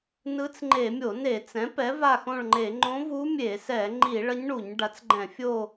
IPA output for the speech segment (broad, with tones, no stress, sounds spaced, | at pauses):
n ɯ˧˥ t͡s ŋ͡ǃ e˧˩˧ mʲ o˧˩˧ n e˧˩˧ t͡s ɛ̃˩˥ p ɛ˩˥ v a˦˨ x õ˦˨ ɭ ŋ͡ǃ e˧˩˧ ŋ͡ǃ õ˧˥ v u˧˥ mʲ e˧˩˧ s ɛ˧˩˧ ŋ͡ǃ i˧˩˧ ɭ ʌ˧˥ ɲ ɳ u˧˩˧ ɲ ɖ a˩˥ t͡s ɡ͡ǃ ɛ̃˧˩˧ fʲ o˦˨